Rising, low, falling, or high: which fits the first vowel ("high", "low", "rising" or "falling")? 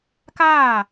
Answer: falling